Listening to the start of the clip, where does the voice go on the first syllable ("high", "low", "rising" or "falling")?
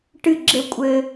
falling